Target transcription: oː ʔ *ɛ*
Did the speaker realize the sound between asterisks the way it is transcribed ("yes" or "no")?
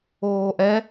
yes